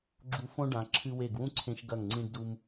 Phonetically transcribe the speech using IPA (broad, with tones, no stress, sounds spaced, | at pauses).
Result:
ɡ͡ǁ u˧ f õ˥ ɖ ã˩˧ ǁʰ ɨ˧ w e˧˩ ɡ w ũ˥ ǀʰ ẽ˧ ʃ ɡ ɐ˧˩ ŋ ŋ͡ǀ ĩ˧ ɖ d u˧ m